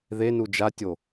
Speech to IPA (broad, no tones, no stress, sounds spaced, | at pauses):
ð e n u d͡ʒ a tʲ o